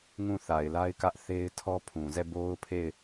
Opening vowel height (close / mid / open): close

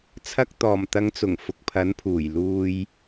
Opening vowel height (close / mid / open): open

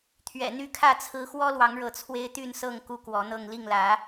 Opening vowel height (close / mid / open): mid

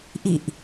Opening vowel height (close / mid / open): close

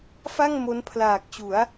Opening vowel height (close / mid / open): open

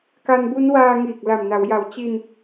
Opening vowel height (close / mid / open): open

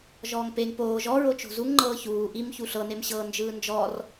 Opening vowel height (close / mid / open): mid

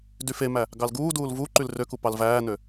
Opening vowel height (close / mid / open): close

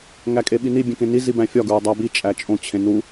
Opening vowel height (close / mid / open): open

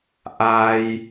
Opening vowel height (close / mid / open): open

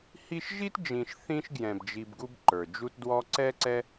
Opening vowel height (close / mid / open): close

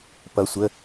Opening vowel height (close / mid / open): mid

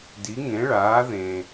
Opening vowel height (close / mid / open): close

